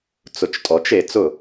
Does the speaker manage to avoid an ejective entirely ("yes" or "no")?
no